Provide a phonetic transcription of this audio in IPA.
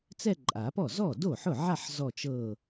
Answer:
t͡s ɛ˥˧ ǃʼ a˨˩˦ p ɔ˥˩ z ɔ˥˩ d o˥˩ ħ ʊ˥˩ ʕ a˥˧ ħ z ɔ˥˧ t͡ʃ ɤ˥˧

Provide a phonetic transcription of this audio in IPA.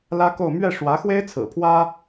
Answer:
l ä˥ k o˥˧ ʊ̯ m ɥ ɛ˥˩ ʂ w ä˧˥ x w e˥ ɪ̯ t͡sʰ ɹ̩˨˩ pʰ w ä˥

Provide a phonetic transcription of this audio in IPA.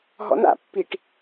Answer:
ɦ ɔ̰ n a̰ pː i ʈ

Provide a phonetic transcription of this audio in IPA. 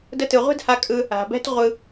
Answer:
d ə˧ t ɯ˨ ʁʷ ɛ̤˦ d h a˧ kʼ ɯ˧ | a̤˨ b ɛ̤˦ t ʁʷ ɯ˧

